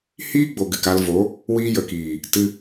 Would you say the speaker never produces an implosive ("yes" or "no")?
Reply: yes